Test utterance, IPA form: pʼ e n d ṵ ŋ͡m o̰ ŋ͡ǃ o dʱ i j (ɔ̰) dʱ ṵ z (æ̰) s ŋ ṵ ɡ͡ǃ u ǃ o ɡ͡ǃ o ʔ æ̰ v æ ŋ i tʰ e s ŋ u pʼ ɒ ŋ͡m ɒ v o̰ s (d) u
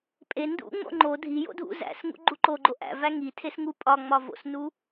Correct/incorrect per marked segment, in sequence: incorrect, correct, incorrect

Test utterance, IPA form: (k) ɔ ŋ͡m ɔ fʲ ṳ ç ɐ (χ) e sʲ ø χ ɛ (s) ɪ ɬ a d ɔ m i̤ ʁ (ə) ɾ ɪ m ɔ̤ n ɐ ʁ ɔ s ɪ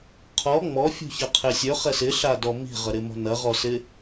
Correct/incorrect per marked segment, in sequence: incorrect, incorrect, correct, correct

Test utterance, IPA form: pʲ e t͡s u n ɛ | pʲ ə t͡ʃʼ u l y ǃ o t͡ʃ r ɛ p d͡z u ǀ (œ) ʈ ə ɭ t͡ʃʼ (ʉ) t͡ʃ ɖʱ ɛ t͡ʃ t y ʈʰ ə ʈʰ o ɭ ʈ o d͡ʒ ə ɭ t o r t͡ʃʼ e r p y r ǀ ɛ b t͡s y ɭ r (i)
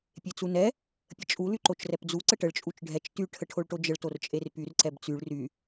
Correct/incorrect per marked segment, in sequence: incorrect, incorrect, incorrect

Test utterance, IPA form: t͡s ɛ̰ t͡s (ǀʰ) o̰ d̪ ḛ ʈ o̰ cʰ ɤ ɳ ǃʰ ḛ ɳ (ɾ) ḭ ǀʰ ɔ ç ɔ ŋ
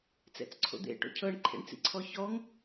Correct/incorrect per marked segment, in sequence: correct, incorrect

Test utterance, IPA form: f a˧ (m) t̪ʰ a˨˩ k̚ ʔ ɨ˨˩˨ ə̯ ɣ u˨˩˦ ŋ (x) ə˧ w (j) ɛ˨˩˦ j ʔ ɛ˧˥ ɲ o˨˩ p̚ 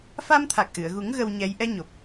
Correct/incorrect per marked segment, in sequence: correct, incorrect, incorrect

